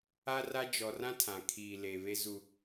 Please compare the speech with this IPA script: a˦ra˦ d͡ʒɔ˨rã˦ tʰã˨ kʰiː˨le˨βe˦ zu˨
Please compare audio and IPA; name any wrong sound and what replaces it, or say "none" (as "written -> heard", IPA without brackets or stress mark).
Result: u˨ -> u˦